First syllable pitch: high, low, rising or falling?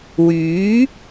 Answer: rising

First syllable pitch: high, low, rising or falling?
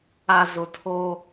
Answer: low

